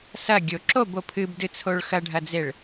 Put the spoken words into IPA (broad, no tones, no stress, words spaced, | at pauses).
sɐɡʲo ǁobo pʰɨbdɨt͡sʰoɭ xɐɖʱɐd͡zeɭ